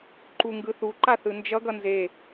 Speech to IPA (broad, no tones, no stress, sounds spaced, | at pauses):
ǃ u ŋ ɡ ɯ θ u ǃ a θ ɯ n d͡ʒ ʌ ɡ ʌ n z e